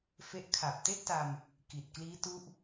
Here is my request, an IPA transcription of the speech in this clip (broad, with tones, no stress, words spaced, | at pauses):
fe˦˥ʔkʰa˨˩p̚ te˥˩ʔta˧m | ki˨˩t̚ kliː˦˥tu˦˥ʔ